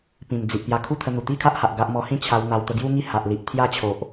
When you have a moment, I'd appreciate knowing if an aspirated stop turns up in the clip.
yes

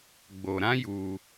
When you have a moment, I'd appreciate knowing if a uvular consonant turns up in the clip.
no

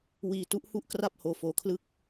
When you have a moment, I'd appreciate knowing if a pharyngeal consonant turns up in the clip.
no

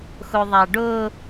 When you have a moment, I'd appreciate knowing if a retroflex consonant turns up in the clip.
yes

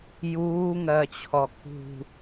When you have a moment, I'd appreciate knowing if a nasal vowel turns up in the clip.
no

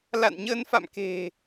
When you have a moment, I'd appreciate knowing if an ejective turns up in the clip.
no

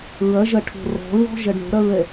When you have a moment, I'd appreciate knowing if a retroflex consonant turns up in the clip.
yes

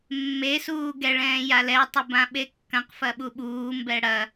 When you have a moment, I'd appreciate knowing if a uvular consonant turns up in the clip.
yes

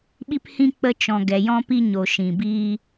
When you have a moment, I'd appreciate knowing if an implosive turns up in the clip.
yes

